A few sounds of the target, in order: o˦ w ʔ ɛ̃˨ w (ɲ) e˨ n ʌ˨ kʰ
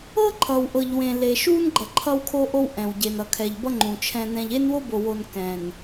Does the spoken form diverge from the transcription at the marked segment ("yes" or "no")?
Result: yes